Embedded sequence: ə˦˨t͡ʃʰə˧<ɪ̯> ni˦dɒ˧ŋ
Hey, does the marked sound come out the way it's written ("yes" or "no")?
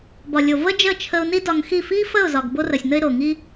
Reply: no